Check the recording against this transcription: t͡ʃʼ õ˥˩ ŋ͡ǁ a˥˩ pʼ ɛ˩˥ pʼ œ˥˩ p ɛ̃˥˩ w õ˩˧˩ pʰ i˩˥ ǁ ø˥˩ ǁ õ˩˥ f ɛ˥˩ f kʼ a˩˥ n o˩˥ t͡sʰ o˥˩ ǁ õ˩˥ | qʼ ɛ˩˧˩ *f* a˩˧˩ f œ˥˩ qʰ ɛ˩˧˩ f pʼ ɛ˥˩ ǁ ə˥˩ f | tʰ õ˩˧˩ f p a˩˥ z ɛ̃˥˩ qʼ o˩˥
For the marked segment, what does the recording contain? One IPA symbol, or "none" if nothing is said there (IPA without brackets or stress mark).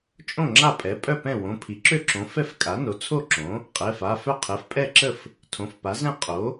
f